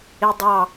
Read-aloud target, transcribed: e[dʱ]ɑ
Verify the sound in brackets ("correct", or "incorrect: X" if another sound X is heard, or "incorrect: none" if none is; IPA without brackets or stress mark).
incorrect: dˤ